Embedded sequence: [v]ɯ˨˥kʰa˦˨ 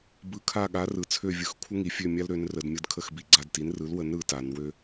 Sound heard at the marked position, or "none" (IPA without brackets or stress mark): b